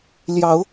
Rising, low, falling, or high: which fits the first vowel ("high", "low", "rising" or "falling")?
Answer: rising